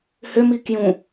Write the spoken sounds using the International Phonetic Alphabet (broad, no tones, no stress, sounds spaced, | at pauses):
h ʏ m i k j ũ